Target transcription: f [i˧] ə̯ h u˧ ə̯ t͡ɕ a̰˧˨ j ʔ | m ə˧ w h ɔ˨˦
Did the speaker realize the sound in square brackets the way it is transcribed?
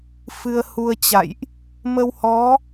no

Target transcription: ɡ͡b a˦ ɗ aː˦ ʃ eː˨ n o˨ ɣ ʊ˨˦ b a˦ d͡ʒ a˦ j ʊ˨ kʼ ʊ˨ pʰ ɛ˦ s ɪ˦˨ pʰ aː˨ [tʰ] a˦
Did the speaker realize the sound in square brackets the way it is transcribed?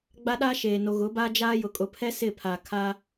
no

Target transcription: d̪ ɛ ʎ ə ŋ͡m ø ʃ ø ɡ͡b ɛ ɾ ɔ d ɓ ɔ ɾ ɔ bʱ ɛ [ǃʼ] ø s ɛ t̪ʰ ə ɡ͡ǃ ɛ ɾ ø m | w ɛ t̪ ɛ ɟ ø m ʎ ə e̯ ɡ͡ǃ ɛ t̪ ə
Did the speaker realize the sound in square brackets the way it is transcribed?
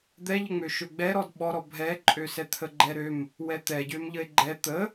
yes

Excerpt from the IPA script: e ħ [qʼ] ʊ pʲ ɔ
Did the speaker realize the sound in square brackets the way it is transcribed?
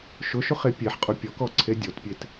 yes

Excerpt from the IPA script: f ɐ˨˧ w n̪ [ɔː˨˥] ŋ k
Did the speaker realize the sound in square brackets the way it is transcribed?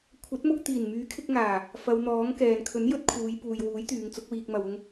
yes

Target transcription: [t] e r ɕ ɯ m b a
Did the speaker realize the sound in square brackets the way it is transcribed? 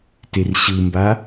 yes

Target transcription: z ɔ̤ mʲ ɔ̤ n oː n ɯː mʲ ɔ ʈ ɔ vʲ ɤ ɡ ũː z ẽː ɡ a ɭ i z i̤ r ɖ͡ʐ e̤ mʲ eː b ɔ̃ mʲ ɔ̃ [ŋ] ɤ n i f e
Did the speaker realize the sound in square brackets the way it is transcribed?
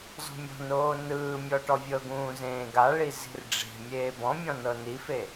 no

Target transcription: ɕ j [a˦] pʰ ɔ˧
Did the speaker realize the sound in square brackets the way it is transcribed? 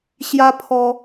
yes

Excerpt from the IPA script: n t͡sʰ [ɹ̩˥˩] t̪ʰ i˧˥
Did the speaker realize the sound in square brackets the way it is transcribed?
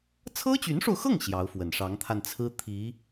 no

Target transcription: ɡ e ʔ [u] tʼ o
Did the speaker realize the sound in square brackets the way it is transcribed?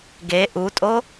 yes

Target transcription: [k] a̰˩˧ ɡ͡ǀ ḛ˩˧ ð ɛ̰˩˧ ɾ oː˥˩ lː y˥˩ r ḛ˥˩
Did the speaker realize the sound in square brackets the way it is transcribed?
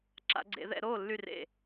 no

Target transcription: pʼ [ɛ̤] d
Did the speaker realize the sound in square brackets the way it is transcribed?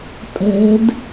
yes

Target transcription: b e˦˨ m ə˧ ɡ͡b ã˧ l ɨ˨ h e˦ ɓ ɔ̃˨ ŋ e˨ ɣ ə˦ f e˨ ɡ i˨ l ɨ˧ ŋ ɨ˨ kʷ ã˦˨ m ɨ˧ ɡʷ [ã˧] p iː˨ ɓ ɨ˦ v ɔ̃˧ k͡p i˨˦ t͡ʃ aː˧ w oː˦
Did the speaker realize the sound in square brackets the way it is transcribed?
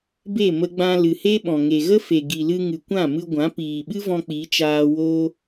no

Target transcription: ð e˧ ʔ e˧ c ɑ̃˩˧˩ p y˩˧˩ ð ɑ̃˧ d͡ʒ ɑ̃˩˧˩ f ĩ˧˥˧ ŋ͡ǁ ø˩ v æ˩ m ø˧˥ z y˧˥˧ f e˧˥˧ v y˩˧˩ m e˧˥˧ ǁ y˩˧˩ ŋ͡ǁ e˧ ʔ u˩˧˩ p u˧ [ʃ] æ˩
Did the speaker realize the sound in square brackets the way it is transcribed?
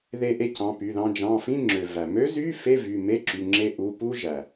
no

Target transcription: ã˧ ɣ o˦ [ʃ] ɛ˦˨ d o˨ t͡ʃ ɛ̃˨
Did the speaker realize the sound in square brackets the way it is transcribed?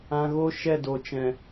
yes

